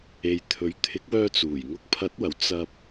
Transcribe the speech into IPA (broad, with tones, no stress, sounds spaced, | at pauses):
e˨ j t̪ʰ ɵ˨˥ ɥ t̪ʰ ɪ˨˥ k̚ w œː˧ t͡s uː˨˩ j ŋ ʊ˨ k̚ pʰ ɐ˨˥ t̚ w ɐ˨˩ w t͡s ɐ˧ p̚